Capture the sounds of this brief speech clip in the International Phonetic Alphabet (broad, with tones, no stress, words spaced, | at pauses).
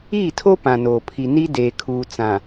iː˦˨tʰo˦ pã˨noː˨pʰi˨ ni˦ deː˨kʰuː˨ t͡sã˨